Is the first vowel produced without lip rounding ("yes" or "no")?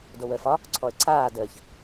no